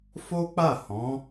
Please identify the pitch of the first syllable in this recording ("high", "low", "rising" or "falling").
high